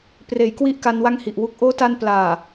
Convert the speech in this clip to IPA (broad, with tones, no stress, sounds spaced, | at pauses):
p r eː˩˦ j k w i˥˩ ʔ k a˧ n w a˥˩ ŋ h i˨˩ ʔ w u˦˥ k̚ ʔ oː˦˥ t a˧ n p l aː˨˩